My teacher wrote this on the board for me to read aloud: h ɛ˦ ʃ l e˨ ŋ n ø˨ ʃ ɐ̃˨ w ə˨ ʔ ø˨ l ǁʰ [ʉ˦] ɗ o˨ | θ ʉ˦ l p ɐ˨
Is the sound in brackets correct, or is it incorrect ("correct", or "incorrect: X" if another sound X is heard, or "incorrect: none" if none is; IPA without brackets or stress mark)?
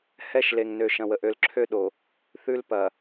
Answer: incorrect: ø˦